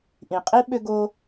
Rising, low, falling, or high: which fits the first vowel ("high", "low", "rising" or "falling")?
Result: low